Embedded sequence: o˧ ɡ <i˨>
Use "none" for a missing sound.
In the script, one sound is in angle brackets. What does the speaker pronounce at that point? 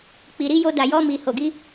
i˦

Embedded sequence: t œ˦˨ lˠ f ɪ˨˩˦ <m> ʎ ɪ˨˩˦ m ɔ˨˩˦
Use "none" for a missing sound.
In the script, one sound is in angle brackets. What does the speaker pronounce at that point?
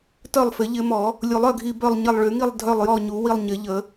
none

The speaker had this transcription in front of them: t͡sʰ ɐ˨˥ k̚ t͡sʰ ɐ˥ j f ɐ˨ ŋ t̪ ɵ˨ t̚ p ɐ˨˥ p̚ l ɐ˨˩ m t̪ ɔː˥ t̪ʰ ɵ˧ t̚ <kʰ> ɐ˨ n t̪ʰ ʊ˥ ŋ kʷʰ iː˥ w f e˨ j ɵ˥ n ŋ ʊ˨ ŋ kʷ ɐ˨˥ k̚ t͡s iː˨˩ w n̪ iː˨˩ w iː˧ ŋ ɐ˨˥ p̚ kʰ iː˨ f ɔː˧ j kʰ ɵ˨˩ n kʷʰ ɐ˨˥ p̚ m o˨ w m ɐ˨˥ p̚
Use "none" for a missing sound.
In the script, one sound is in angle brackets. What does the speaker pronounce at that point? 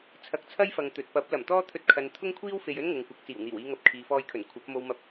kʰ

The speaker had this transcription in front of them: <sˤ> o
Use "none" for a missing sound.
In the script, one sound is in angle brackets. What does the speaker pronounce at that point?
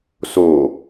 s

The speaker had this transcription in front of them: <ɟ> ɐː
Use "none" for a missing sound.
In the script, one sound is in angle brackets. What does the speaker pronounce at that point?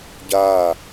ɟ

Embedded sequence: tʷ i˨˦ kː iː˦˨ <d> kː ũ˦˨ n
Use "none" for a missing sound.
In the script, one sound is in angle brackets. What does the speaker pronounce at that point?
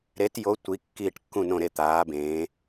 ʈ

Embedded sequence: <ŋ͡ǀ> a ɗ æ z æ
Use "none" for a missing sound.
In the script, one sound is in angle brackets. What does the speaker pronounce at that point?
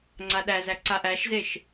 ŋ͡ǀ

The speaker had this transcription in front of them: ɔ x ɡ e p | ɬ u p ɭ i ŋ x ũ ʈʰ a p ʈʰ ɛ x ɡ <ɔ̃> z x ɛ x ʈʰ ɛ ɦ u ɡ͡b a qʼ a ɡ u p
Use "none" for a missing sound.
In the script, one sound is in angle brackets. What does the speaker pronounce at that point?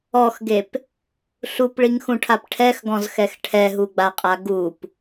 ɔ̃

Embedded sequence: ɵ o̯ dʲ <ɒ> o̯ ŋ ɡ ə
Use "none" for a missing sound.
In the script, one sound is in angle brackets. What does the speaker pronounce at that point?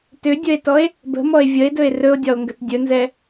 ɒ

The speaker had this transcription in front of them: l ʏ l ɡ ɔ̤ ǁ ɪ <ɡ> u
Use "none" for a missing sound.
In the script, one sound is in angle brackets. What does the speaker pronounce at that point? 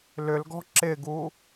ɡ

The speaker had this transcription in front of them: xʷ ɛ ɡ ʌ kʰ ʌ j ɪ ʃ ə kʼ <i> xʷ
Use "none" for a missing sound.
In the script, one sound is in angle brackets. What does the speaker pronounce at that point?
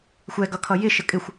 ɪ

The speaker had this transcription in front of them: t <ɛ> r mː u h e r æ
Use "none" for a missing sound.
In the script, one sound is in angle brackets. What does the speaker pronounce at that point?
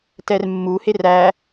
ɛ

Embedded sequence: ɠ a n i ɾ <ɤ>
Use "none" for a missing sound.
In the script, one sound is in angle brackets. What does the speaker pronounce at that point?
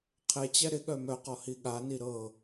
ɤ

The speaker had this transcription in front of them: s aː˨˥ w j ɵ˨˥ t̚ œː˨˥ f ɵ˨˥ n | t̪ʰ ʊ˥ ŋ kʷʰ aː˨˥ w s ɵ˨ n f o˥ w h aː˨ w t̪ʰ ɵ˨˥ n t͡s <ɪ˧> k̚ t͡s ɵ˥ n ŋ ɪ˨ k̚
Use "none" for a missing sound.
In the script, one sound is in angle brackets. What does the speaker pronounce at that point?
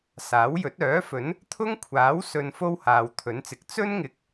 ɪ˨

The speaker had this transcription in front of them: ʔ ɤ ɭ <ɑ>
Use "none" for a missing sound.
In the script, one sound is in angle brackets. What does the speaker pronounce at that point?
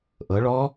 ɔ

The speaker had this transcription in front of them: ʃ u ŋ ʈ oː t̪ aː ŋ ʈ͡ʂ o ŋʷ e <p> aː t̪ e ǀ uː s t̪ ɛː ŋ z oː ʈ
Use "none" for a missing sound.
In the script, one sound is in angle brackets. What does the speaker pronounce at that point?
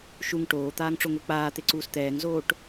k͡p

